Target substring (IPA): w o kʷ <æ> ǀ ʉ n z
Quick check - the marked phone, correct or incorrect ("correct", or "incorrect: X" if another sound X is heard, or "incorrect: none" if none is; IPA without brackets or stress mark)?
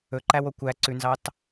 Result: correct